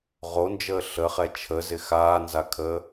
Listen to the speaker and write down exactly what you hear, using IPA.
ʁ o n d͡ʒ əː ɬ ə χ ɛ t͡ʃʰ ə z ɪ x aː n z a kʰ əː

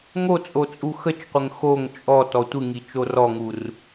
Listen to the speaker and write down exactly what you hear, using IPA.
ŋ o t͡sʼ o t͡sʼ u x ə t͡ʃ qʷ ə ŋ x o ŋ t͡ʃʼ ɔ t ɔ tʷ ɨ ŋ i t͡ʃ o r ɔ ŋ u r

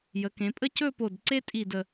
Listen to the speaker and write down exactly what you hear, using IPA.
j ə˩˧ k ẽ˩˧ pʼ ə˥˧ c ɵ˥˧ p o˧˩ d ǀ e˥ tʼ i˧˩ d ə˧˩

